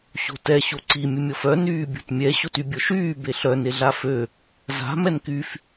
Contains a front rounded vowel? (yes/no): yes